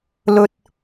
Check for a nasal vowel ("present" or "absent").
absent